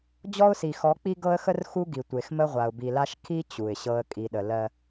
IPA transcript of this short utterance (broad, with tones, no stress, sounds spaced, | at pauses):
d͡ʑ ɔ˦ ʊ̯ s i˨ x ɔ˨˦ k͡p i˦ ɡ ɤ˦ ə̯ x ə˦ r x u˦ ɡ i˨ tʷ e˨ x m ə˦ ʁʷ a˨ ʊ̯ b i˨ l a˦ ʃ kʰ i˦ t͡ɕ u˨ ɪ̯ ɕ ɤ˦ ə̯ kʼ i˨ ɗ ə˨ l ɜ˦